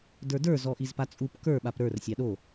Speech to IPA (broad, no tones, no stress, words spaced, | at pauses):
də˞də˞ zɔʔizpat͡sʼup kə˞ ɓapɾə˞r sʲɑɗo